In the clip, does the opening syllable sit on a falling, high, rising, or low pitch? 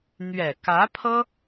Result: low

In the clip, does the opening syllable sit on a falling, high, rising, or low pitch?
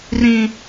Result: high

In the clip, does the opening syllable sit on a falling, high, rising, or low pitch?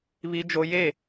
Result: high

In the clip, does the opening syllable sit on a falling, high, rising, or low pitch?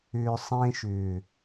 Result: low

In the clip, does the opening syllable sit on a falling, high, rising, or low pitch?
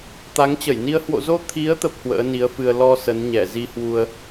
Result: rising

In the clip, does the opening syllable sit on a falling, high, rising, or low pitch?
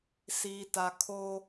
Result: low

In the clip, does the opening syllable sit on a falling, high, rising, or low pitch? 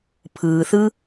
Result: low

